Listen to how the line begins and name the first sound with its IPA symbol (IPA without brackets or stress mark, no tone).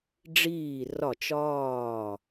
ɖ͡ʐ